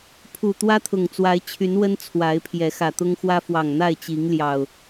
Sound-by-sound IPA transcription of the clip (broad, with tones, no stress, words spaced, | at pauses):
pʰu˨˩ t̪wä˦t̪ʰʊ˨˩ŋt͡swa˨˦ɪ̯t͡ɕʰy˨˦n wə˦n t͡sʰwa˨˦ɪ̯pʰjɛ˨˦ xä˨˩t̪ʊ˦ŋxwä˦ fwɑ˨˩ŋn̪a˥˨ɪ̯t͡ɕi˨˦ŋ ljɑ˨˩ʊ̯